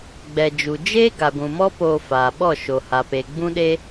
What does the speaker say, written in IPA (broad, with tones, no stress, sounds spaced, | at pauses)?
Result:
ɡ͡b ɛ˨ d͡ʒ u˨ d͡ʒ eː˦ ɡ a˨ ɡʷ ũ˨ m ɔ˦ p oː˧ f aː˨ ɓ ɔ˦˨ ʃ o˨ h a˨ p e˨ ɡ͡b ũ˦ ɗ e˦